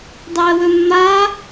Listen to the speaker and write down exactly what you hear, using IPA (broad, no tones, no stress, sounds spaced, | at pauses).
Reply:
dˤ ɵ ə̯ w ɵ mː a